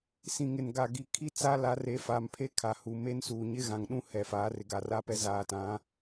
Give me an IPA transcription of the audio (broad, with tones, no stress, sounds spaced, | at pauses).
s ĩ˨ ŋ ɪ˨ n ɡ a˨ ɡ i˨ kʰ i˦ t͡s a˦ l a˨˦ r e˨˦ f a˨ m pʰ e˦ kʰ a˨ h u˨ m e˦ n s uː˨ ɲ ɪ˦ ɣ ã˨ ŋ ɗ ũ˦ h ɛ˨ f aː˨˦ r ɪ˨ ɡ a˨ r a˦ p ɛ˦ z aː˨ t ã˨˦